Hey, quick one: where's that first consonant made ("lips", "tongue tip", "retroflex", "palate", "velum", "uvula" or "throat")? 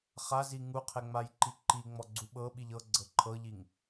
uvula